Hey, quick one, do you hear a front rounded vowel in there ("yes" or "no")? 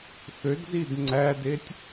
yes